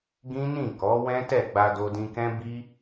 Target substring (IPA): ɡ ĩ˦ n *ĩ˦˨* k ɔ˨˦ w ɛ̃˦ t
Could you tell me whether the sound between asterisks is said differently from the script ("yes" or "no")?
no